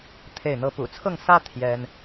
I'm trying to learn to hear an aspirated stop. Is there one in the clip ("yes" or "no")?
yes